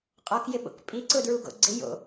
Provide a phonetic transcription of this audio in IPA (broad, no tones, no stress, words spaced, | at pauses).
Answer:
qʼɔkjɪɓo̰k pʼiǀʊdɹuɡo̰ ɡ͡ǀɪ jo̰